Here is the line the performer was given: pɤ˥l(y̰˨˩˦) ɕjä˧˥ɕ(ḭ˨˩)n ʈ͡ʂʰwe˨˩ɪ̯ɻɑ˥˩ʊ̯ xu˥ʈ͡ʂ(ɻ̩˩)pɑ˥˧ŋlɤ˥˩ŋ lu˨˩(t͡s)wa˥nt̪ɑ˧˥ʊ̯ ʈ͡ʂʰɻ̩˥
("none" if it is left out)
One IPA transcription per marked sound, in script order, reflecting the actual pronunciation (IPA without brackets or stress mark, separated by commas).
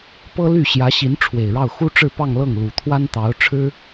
y˥˩, i˧˥, ɻ̩˥˧, t̪ʰ